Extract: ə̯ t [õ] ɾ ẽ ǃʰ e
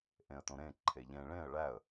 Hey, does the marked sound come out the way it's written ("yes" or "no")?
yes